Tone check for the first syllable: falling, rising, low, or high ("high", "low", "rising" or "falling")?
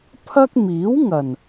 high